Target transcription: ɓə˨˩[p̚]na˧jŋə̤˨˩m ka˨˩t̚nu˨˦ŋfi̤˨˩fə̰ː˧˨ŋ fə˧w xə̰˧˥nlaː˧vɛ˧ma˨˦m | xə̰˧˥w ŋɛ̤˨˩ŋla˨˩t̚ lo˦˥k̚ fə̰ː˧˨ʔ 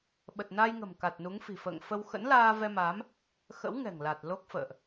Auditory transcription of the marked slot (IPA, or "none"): t̚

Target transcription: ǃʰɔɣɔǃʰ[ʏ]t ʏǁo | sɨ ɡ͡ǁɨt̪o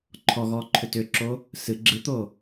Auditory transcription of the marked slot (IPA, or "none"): ʏ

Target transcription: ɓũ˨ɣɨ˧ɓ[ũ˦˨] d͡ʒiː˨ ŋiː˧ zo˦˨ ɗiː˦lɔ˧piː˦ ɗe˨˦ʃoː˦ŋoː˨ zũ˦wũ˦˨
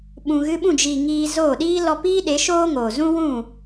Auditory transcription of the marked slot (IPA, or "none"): ũ˦˨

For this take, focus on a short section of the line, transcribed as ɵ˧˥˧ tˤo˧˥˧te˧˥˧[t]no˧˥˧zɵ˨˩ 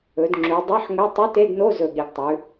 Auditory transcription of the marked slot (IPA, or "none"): d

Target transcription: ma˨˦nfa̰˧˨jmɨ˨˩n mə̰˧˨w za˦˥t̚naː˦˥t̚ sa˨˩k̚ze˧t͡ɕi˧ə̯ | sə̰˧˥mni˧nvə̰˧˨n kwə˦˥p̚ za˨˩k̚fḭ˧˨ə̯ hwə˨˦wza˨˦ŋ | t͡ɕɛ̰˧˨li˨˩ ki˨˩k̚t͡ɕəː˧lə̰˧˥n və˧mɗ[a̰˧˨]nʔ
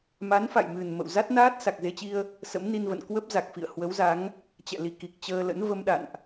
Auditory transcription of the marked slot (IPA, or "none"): a̰˧˨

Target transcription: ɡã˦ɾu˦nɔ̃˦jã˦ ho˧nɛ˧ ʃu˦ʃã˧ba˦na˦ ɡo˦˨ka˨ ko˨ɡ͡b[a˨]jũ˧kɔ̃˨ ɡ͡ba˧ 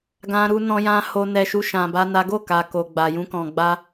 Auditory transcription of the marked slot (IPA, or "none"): a˨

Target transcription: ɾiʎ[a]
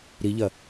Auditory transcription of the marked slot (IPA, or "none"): ɐ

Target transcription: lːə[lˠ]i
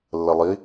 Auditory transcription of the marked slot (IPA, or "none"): lˠ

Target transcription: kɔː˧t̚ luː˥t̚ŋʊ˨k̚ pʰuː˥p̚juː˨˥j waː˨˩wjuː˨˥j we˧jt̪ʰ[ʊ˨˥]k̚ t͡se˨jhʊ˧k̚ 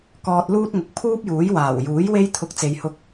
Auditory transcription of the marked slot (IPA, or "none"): ʊ˨˥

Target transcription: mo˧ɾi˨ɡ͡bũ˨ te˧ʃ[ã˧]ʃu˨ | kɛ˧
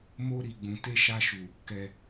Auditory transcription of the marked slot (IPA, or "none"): a˧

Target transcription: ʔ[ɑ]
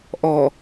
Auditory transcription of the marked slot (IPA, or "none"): ɔ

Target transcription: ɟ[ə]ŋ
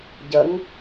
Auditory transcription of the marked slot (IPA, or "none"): ə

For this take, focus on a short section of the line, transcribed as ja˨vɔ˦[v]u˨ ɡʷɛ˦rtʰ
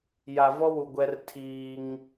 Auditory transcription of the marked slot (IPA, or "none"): w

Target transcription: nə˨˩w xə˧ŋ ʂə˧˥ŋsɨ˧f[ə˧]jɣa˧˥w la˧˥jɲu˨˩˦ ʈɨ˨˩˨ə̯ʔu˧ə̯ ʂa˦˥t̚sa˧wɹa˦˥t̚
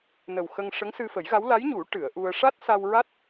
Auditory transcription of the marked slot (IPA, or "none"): ə˨˩˦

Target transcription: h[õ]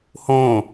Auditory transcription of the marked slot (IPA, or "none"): õː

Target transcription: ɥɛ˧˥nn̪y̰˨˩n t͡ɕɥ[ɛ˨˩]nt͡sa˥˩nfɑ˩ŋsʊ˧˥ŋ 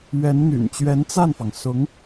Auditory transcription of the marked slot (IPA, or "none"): ɛ˧˥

